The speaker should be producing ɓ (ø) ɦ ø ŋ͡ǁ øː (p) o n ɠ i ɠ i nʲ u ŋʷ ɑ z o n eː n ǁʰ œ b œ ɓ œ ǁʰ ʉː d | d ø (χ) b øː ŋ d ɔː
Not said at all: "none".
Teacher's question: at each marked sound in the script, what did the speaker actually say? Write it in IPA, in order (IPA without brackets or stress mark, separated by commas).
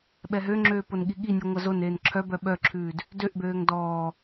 ɛ, p, ʔ